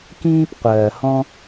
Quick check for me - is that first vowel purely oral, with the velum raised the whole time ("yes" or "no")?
no